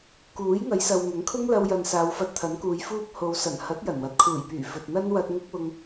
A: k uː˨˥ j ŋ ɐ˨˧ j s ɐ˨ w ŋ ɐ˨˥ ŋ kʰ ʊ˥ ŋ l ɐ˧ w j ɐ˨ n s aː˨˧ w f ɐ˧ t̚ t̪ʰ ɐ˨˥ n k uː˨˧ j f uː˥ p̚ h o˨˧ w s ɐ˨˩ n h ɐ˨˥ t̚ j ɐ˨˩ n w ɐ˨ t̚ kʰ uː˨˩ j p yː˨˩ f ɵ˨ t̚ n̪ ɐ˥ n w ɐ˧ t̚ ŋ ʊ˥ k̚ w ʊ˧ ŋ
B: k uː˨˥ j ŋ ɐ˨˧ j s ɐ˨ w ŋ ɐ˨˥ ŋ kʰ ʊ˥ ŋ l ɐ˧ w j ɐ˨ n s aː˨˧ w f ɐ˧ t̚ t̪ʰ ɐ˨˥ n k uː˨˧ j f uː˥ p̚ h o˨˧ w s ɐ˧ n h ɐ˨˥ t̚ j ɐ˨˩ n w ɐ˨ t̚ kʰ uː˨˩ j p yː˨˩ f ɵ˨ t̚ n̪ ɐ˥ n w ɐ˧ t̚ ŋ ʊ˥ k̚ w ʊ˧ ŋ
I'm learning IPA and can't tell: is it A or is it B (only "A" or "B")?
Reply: A